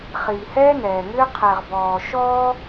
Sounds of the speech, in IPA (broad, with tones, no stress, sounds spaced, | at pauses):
χ iː˨ h ɛː˦ n ɛː˨ ŋ ʏː˦ qʰ ɛ˨ ʁ b ɔː˨ ʃ ɔː˦